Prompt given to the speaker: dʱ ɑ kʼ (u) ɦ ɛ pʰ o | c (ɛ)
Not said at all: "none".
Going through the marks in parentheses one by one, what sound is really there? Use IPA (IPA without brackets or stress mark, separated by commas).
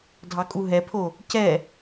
u, ɛ